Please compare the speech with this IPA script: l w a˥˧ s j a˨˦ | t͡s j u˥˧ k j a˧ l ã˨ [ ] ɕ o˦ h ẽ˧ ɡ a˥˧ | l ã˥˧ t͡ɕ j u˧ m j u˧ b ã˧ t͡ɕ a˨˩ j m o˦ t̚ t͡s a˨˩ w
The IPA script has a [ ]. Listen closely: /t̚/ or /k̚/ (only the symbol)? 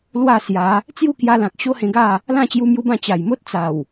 k̚